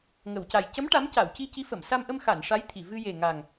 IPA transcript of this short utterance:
ŋ ə˨˩˨ w c a˨˩ j c ə˧˥ m ʈ a˧˥ m c a˨˩˨ w c i˧ c i˧˥ f ə˨˩˨ m s a˧ m ʔ ə˧ m x a˨˩˨ n ʂ a˧˥ j t̪ʰ i˨˩˨ v ɨ˧ j e˨˩ ŋ a˨˩ ŋ

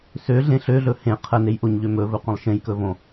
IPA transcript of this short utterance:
s ø ɮ ẽ ɬ ø ɮ ɵ h ẽ qʰ ə n e j ʔ o ɲ ʎ ø m ɵ v ɵ qʷ ə̃ lˠ ʃ ẽ j k ɵ v õ

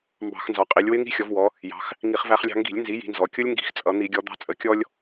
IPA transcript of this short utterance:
m b ɑ̤˧˩˧ x n z ɒ˩˧ qʼ i˩˧ lʲ w ɪ˦˥ ŋ i̤˦˥ xʲ ɔ˩˧ v w ɔ˩˧ | j ɑ̤˩˧ x | ŋ i˧˩˧ χ v æ˧ χ lʲ ɑ̤˧ ŋ ɡ i̤˧˩˧ lʲ n z i˩˥ j i̤˩˧ n z ɔ˩˧ kʲ ʊ˦˥ lʲ ŋ ɡ i̤˧˩˧ x t͡sʼ ʌ˧˩˧ n̪ i˧˩˧ ɡʲ ɔ˩˧ d̪ ɑ̤˧ t͡sʼ ə˩˧ kʲ ɔ˧ lʲ

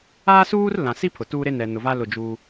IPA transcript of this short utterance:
aː˦ s uː˦ r l ã˨ s i˦ pʰ ʊ˨ t uː˦ ɾ e˦ n ɛ˨ n ʊ˨ v a˦ l ʊ˦˨ d͡ʒ uː˦

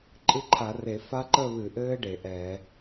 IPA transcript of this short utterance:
ǃʼ ɨ˦˥ ǃʰ a˧˩˧ r e˧˩˧ f a˦˥ ǃ ə˥˧ β ɨ˧˩˧ ʔ ɘː˦˥ ɖ e˧˩˧ ʔ ɛː˧˩˧

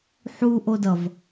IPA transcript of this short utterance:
ħ u ʔ o d ʌ v

